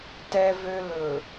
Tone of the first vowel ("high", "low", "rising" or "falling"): low